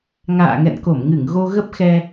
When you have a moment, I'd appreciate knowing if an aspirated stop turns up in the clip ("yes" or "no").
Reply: no